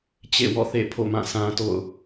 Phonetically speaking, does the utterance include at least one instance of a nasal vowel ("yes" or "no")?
yes